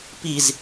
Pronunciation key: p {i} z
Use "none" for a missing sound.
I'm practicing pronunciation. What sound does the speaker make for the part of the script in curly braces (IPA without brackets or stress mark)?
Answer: i